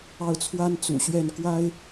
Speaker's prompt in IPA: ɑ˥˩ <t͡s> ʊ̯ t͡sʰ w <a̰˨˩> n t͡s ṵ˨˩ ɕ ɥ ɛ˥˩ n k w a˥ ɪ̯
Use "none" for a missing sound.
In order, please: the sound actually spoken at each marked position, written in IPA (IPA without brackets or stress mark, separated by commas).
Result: none, a˥